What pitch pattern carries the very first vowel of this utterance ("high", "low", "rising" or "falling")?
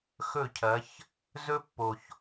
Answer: falling